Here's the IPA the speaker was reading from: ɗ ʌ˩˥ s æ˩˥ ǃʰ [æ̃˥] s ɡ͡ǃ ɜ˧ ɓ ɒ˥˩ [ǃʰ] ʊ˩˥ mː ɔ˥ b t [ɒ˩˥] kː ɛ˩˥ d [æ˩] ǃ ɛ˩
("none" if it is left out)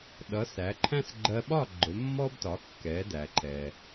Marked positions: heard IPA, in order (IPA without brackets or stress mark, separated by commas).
æ̃˥, ɡ͡ǃ, ɒ˩˥, æ˩